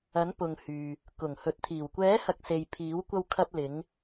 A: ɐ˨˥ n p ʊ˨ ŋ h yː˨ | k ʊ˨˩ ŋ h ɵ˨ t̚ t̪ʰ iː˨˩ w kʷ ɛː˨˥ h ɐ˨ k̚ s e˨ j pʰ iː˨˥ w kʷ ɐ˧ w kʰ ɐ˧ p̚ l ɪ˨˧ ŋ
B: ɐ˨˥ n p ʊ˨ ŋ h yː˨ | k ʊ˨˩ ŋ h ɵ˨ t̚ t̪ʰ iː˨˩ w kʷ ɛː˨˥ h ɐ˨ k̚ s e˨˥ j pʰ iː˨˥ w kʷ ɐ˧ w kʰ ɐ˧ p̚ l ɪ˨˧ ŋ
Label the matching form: A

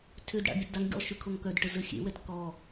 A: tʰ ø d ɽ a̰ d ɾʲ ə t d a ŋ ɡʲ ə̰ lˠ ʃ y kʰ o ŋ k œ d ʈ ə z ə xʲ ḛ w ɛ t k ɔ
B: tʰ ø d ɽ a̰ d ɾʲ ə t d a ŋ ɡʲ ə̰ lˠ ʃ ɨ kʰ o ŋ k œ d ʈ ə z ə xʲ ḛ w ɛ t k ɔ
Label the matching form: A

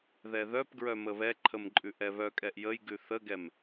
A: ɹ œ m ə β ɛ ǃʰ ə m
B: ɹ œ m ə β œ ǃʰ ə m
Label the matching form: A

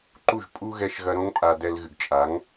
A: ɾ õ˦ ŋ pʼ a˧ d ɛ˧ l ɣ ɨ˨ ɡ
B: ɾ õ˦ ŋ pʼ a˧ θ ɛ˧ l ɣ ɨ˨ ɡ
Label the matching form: A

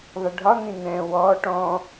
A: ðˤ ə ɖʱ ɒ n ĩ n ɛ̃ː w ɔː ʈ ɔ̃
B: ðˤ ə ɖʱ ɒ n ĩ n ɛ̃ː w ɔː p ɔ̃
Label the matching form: A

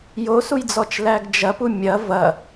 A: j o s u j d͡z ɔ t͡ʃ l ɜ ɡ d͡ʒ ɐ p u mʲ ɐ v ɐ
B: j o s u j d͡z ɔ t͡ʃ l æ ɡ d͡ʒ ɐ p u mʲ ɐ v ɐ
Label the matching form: B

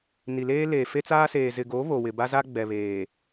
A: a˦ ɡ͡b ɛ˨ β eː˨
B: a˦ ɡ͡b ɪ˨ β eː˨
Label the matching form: A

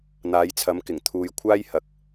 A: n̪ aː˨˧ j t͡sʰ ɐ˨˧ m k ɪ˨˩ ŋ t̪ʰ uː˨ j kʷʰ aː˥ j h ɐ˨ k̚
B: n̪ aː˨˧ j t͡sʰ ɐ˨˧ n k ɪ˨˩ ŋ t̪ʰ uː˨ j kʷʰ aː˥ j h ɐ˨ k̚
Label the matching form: A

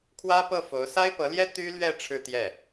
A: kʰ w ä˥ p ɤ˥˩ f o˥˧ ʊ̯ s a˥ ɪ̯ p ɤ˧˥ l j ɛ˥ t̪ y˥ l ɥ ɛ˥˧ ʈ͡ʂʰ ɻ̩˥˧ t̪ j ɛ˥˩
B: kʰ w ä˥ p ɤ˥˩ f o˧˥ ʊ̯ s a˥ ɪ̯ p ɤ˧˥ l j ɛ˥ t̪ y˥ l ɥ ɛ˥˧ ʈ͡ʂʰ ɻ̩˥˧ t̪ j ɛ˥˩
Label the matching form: B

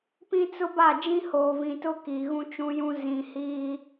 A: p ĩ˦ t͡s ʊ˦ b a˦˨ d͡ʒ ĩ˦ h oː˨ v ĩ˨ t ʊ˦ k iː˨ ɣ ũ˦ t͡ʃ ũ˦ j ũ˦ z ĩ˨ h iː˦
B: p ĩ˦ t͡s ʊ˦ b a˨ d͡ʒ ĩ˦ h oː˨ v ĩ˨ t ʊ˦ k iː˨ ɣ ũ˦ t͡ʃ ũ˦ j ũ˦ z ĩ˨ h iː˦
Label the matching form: A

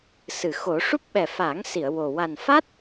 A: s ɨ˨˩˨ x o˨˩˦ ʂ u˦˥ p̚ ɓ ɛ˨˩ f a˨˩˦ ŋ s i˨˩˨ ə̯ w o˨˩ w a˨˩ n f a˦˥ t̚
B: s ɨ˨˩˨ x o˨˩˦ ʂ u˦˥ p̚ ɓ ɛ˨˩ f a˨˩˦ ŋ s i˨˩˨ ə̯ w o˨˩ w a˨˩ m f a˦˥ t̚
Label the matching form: A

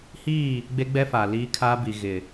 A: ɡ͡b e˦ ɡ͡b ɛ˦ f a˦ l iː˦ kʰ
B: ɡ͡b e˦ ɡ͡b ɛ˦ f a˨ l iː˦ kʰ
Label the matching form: B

